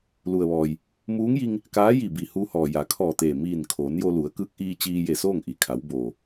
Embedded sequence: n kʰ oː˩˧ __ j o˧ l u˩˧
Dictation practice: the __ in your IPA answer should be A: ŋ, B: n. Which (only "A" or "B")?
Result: B